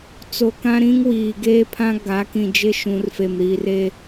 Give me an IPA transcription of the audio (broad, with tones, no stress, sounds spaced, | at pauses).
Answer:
t͡s o˨ k ã˦ ɾ ĩ˦ ŋ w iː˨ ɡ eː˦ pʰ ã˦ ɡ a˨˦ k ĩ˨ d͡ʒ ɪ˦ ʃ ũ˨ r f e˨ m ɾ iː˨ r e˦